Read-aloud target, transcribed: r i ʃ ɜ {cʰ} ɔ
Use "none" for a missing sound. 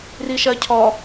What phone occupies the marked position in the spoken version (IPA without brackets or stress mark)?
cʰ